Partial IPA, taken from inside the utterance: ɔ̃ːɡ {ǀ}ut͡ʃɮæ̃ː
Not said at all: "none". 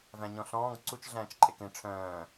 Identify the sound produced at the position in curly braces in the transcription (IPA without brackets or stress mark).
ǀ